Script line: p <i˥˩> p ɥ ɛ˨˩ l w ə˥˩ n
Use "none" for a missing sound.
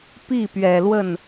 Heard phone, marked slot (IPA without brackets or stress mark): i˥˩